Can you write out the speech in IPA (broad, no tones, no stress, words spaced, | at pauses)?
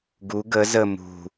ɡu ɡə zə mṳ